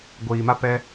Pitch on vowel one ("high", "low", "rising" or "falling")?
low